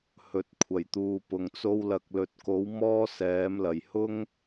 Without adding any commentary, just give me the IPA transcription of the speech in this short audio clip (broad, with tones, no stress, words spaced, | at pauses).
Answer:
hɵ˨t̚kʷʰɐ˨˩jt̪uː˨pʊ˨ŋ t͡so˧wlɐ˨k̚lɵ˨t̚ko˨˥w mɔː˥sɛː˨˥mlɐ˨˩j hʊ˥ŋ